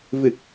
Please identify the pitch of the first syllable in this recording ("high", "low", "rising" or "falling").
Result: low